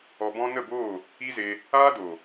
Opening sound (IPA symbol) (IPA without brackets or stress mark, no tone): ɔ